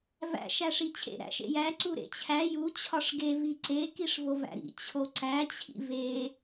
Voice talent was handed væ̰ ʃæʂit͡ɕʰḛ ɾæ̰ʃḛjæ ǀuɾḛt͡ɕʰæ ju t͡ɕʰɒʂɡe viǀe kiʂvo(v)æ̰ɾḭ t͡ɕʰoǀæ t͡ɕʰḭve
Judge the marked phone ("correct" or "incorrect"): correct